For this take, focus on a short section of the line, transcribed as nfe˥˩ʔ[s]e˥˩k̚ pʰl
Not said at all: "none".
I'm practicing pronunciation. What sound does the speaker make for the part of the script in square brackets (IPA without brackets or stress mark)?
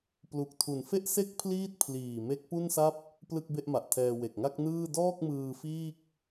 s